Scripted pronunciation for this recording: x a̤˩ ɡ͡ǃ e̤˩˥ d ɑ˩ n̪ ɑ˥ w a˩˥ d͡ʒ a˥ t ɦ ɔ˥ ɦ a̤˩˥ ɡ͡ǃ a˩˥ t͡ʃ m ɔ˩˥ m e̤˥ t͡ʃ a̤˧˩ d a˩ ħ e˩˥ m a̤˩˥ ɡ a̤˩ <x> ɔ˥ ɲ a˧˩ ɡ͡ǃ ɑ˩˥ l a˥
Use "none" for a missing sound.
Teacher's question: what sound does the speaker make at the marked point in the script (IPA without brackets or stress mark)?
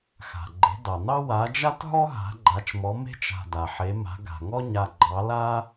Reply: ŋ